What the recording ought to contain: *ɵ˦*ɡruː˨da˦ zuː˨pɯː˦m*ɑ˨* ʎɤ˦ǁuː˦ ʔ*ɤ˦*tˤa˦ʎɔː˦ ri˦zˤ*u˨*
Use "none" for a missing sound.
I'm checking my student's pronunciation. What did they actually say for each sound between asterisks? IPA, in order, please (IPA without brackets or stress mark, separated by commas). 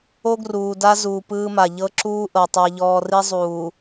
o˦, a˨, ɤ˨, uː˨